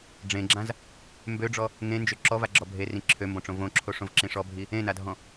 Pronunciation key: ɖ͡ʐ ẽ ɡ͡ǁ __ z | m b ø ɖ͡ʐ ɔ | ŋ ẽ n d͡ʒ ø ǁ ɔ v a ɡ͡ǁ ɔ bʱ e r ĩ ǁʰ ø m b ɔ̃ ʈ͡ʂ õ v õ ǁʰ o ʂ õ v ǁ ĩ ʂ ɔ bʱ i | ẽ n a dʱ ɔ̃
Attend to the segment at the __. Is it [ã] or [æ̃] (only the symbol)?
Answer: ã